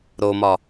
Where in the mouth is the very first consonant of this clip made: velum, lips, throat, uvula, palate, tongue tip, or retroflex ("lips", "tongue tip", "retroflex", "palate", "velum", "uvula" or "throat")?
tongue tip